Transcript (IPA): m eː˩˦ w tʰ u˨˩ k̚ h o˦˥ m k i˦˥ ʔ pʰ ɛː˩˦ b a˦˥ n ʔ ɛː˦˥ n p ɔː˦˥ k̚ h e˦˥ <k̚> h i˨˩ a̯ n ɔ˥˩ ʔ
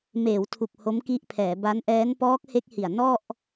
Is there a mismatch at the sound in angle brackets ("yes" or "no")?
no